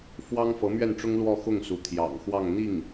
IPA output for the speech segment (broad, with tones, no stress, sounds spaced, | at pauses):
f w ɑ˥ ŋ f ɤ˧˥ m ɥ ɛ˥˩ n ʈ͡ʂ ʊ˥ ŋ l w ɔ˥˧ x ʊ˥˩ ŋ s u˧˥ t̪ʰ j ɑ̰˨˩ ŋ x w ɑ˥˧ ŋ n̪ i˥˩ ŋ